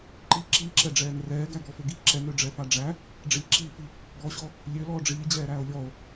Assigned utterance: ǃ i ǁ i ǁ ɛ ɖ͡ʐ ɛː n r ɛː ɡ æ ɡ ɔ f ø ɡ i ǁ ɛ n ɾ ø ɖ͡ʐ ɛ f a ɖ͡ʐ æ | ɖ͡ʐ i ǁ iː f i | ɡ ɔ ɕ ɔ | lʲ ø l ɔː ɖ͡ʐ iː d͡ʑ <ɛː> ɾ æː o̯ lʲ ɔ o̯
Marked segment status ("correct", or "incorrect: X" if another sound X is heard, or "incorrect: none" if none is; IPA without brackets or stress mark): correct